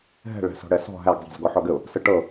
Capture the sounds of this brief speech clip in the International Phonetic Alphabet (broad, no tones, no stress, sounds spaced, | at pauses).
ɦ ɛ̤ ɭ æ̤ s ɔ̤ ɽ ɛ s ɔ̤ ɦ æ ɡ zˤ ɛ̤ z ɡ ɔ ħ ɔ ɡ ɘ ʊ̯ | s ə ʈ ɤ